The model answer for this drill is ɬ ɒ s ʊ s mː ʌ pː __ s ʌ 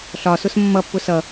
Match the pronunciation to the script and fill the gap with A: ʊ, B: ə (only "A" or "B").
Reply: A